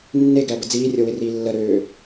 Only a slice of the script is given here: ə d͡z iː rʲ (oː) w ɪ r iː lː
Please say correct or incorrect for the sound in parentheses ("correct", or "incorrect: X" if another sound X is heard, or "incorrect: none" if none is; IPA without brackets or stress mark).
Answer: incorrect: o